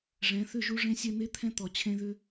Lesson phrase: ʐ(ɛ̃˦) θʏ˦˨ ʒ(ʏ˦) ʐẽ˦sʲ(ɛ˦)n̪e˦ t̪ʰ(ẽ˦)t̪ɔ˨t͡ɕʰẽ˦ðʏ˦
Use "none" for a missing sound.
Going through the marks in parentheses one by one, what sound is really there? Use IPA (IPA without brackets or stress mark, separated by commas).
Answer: ɛ̃˨˦, u˦, ɛ˦, ɛ̃˦